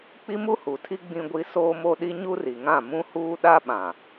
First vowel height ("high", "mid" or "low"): high